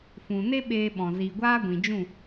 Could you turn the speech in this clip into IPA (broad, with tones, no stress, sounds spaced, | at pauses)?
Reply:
f ũ˨ n e˦ ɓ eː˦ ɓ ɔ̃˨ z iː˨ ɡʷ aː˦ ɡʷ ĩ˨ d͡ʒ ũ˦˨